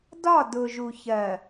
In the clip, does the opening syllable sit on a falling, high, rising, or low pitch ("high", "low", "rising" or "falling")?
falling